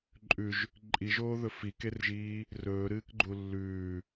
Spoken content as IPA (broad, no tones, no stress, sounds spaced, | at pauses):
ǃʼ ʉ ʒ | ǃʼ i ʒ oː ð ɵ f i k e r ʒ iː | r ɵː ɾ ɨː k ɡ͡ǃ u lː ʉː